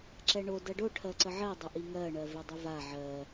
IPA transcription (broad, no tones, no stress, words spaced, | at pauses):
ǁɛɳo dɜɖo ʈʰɜǀəʕɜ dˤʏʔiŋɜ ɳɜvɛdˤʊva ʕɜ